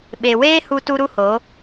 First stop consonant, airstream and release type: implosive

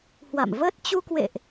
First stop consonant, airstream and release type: plain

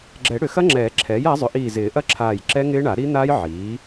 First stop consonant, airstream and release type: click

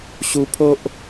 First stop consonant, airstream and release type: aspirated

